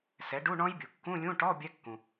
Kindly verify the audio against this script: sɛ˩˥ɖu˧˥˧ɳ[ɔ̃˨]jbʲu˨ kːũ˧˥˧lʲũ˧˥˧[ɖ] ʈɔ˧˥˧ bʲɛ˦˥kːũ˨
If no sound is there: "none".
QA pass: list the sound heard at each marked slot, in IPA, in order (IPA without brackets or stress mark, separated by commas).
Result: ɔ̃˦˥, none